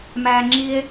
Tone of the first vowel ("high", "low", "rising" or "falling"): low